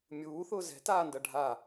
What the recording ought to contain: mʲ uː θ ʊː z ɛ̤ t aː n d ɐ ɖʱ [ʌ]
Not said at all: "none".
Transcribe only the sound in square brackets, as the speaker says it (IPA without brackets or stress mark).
a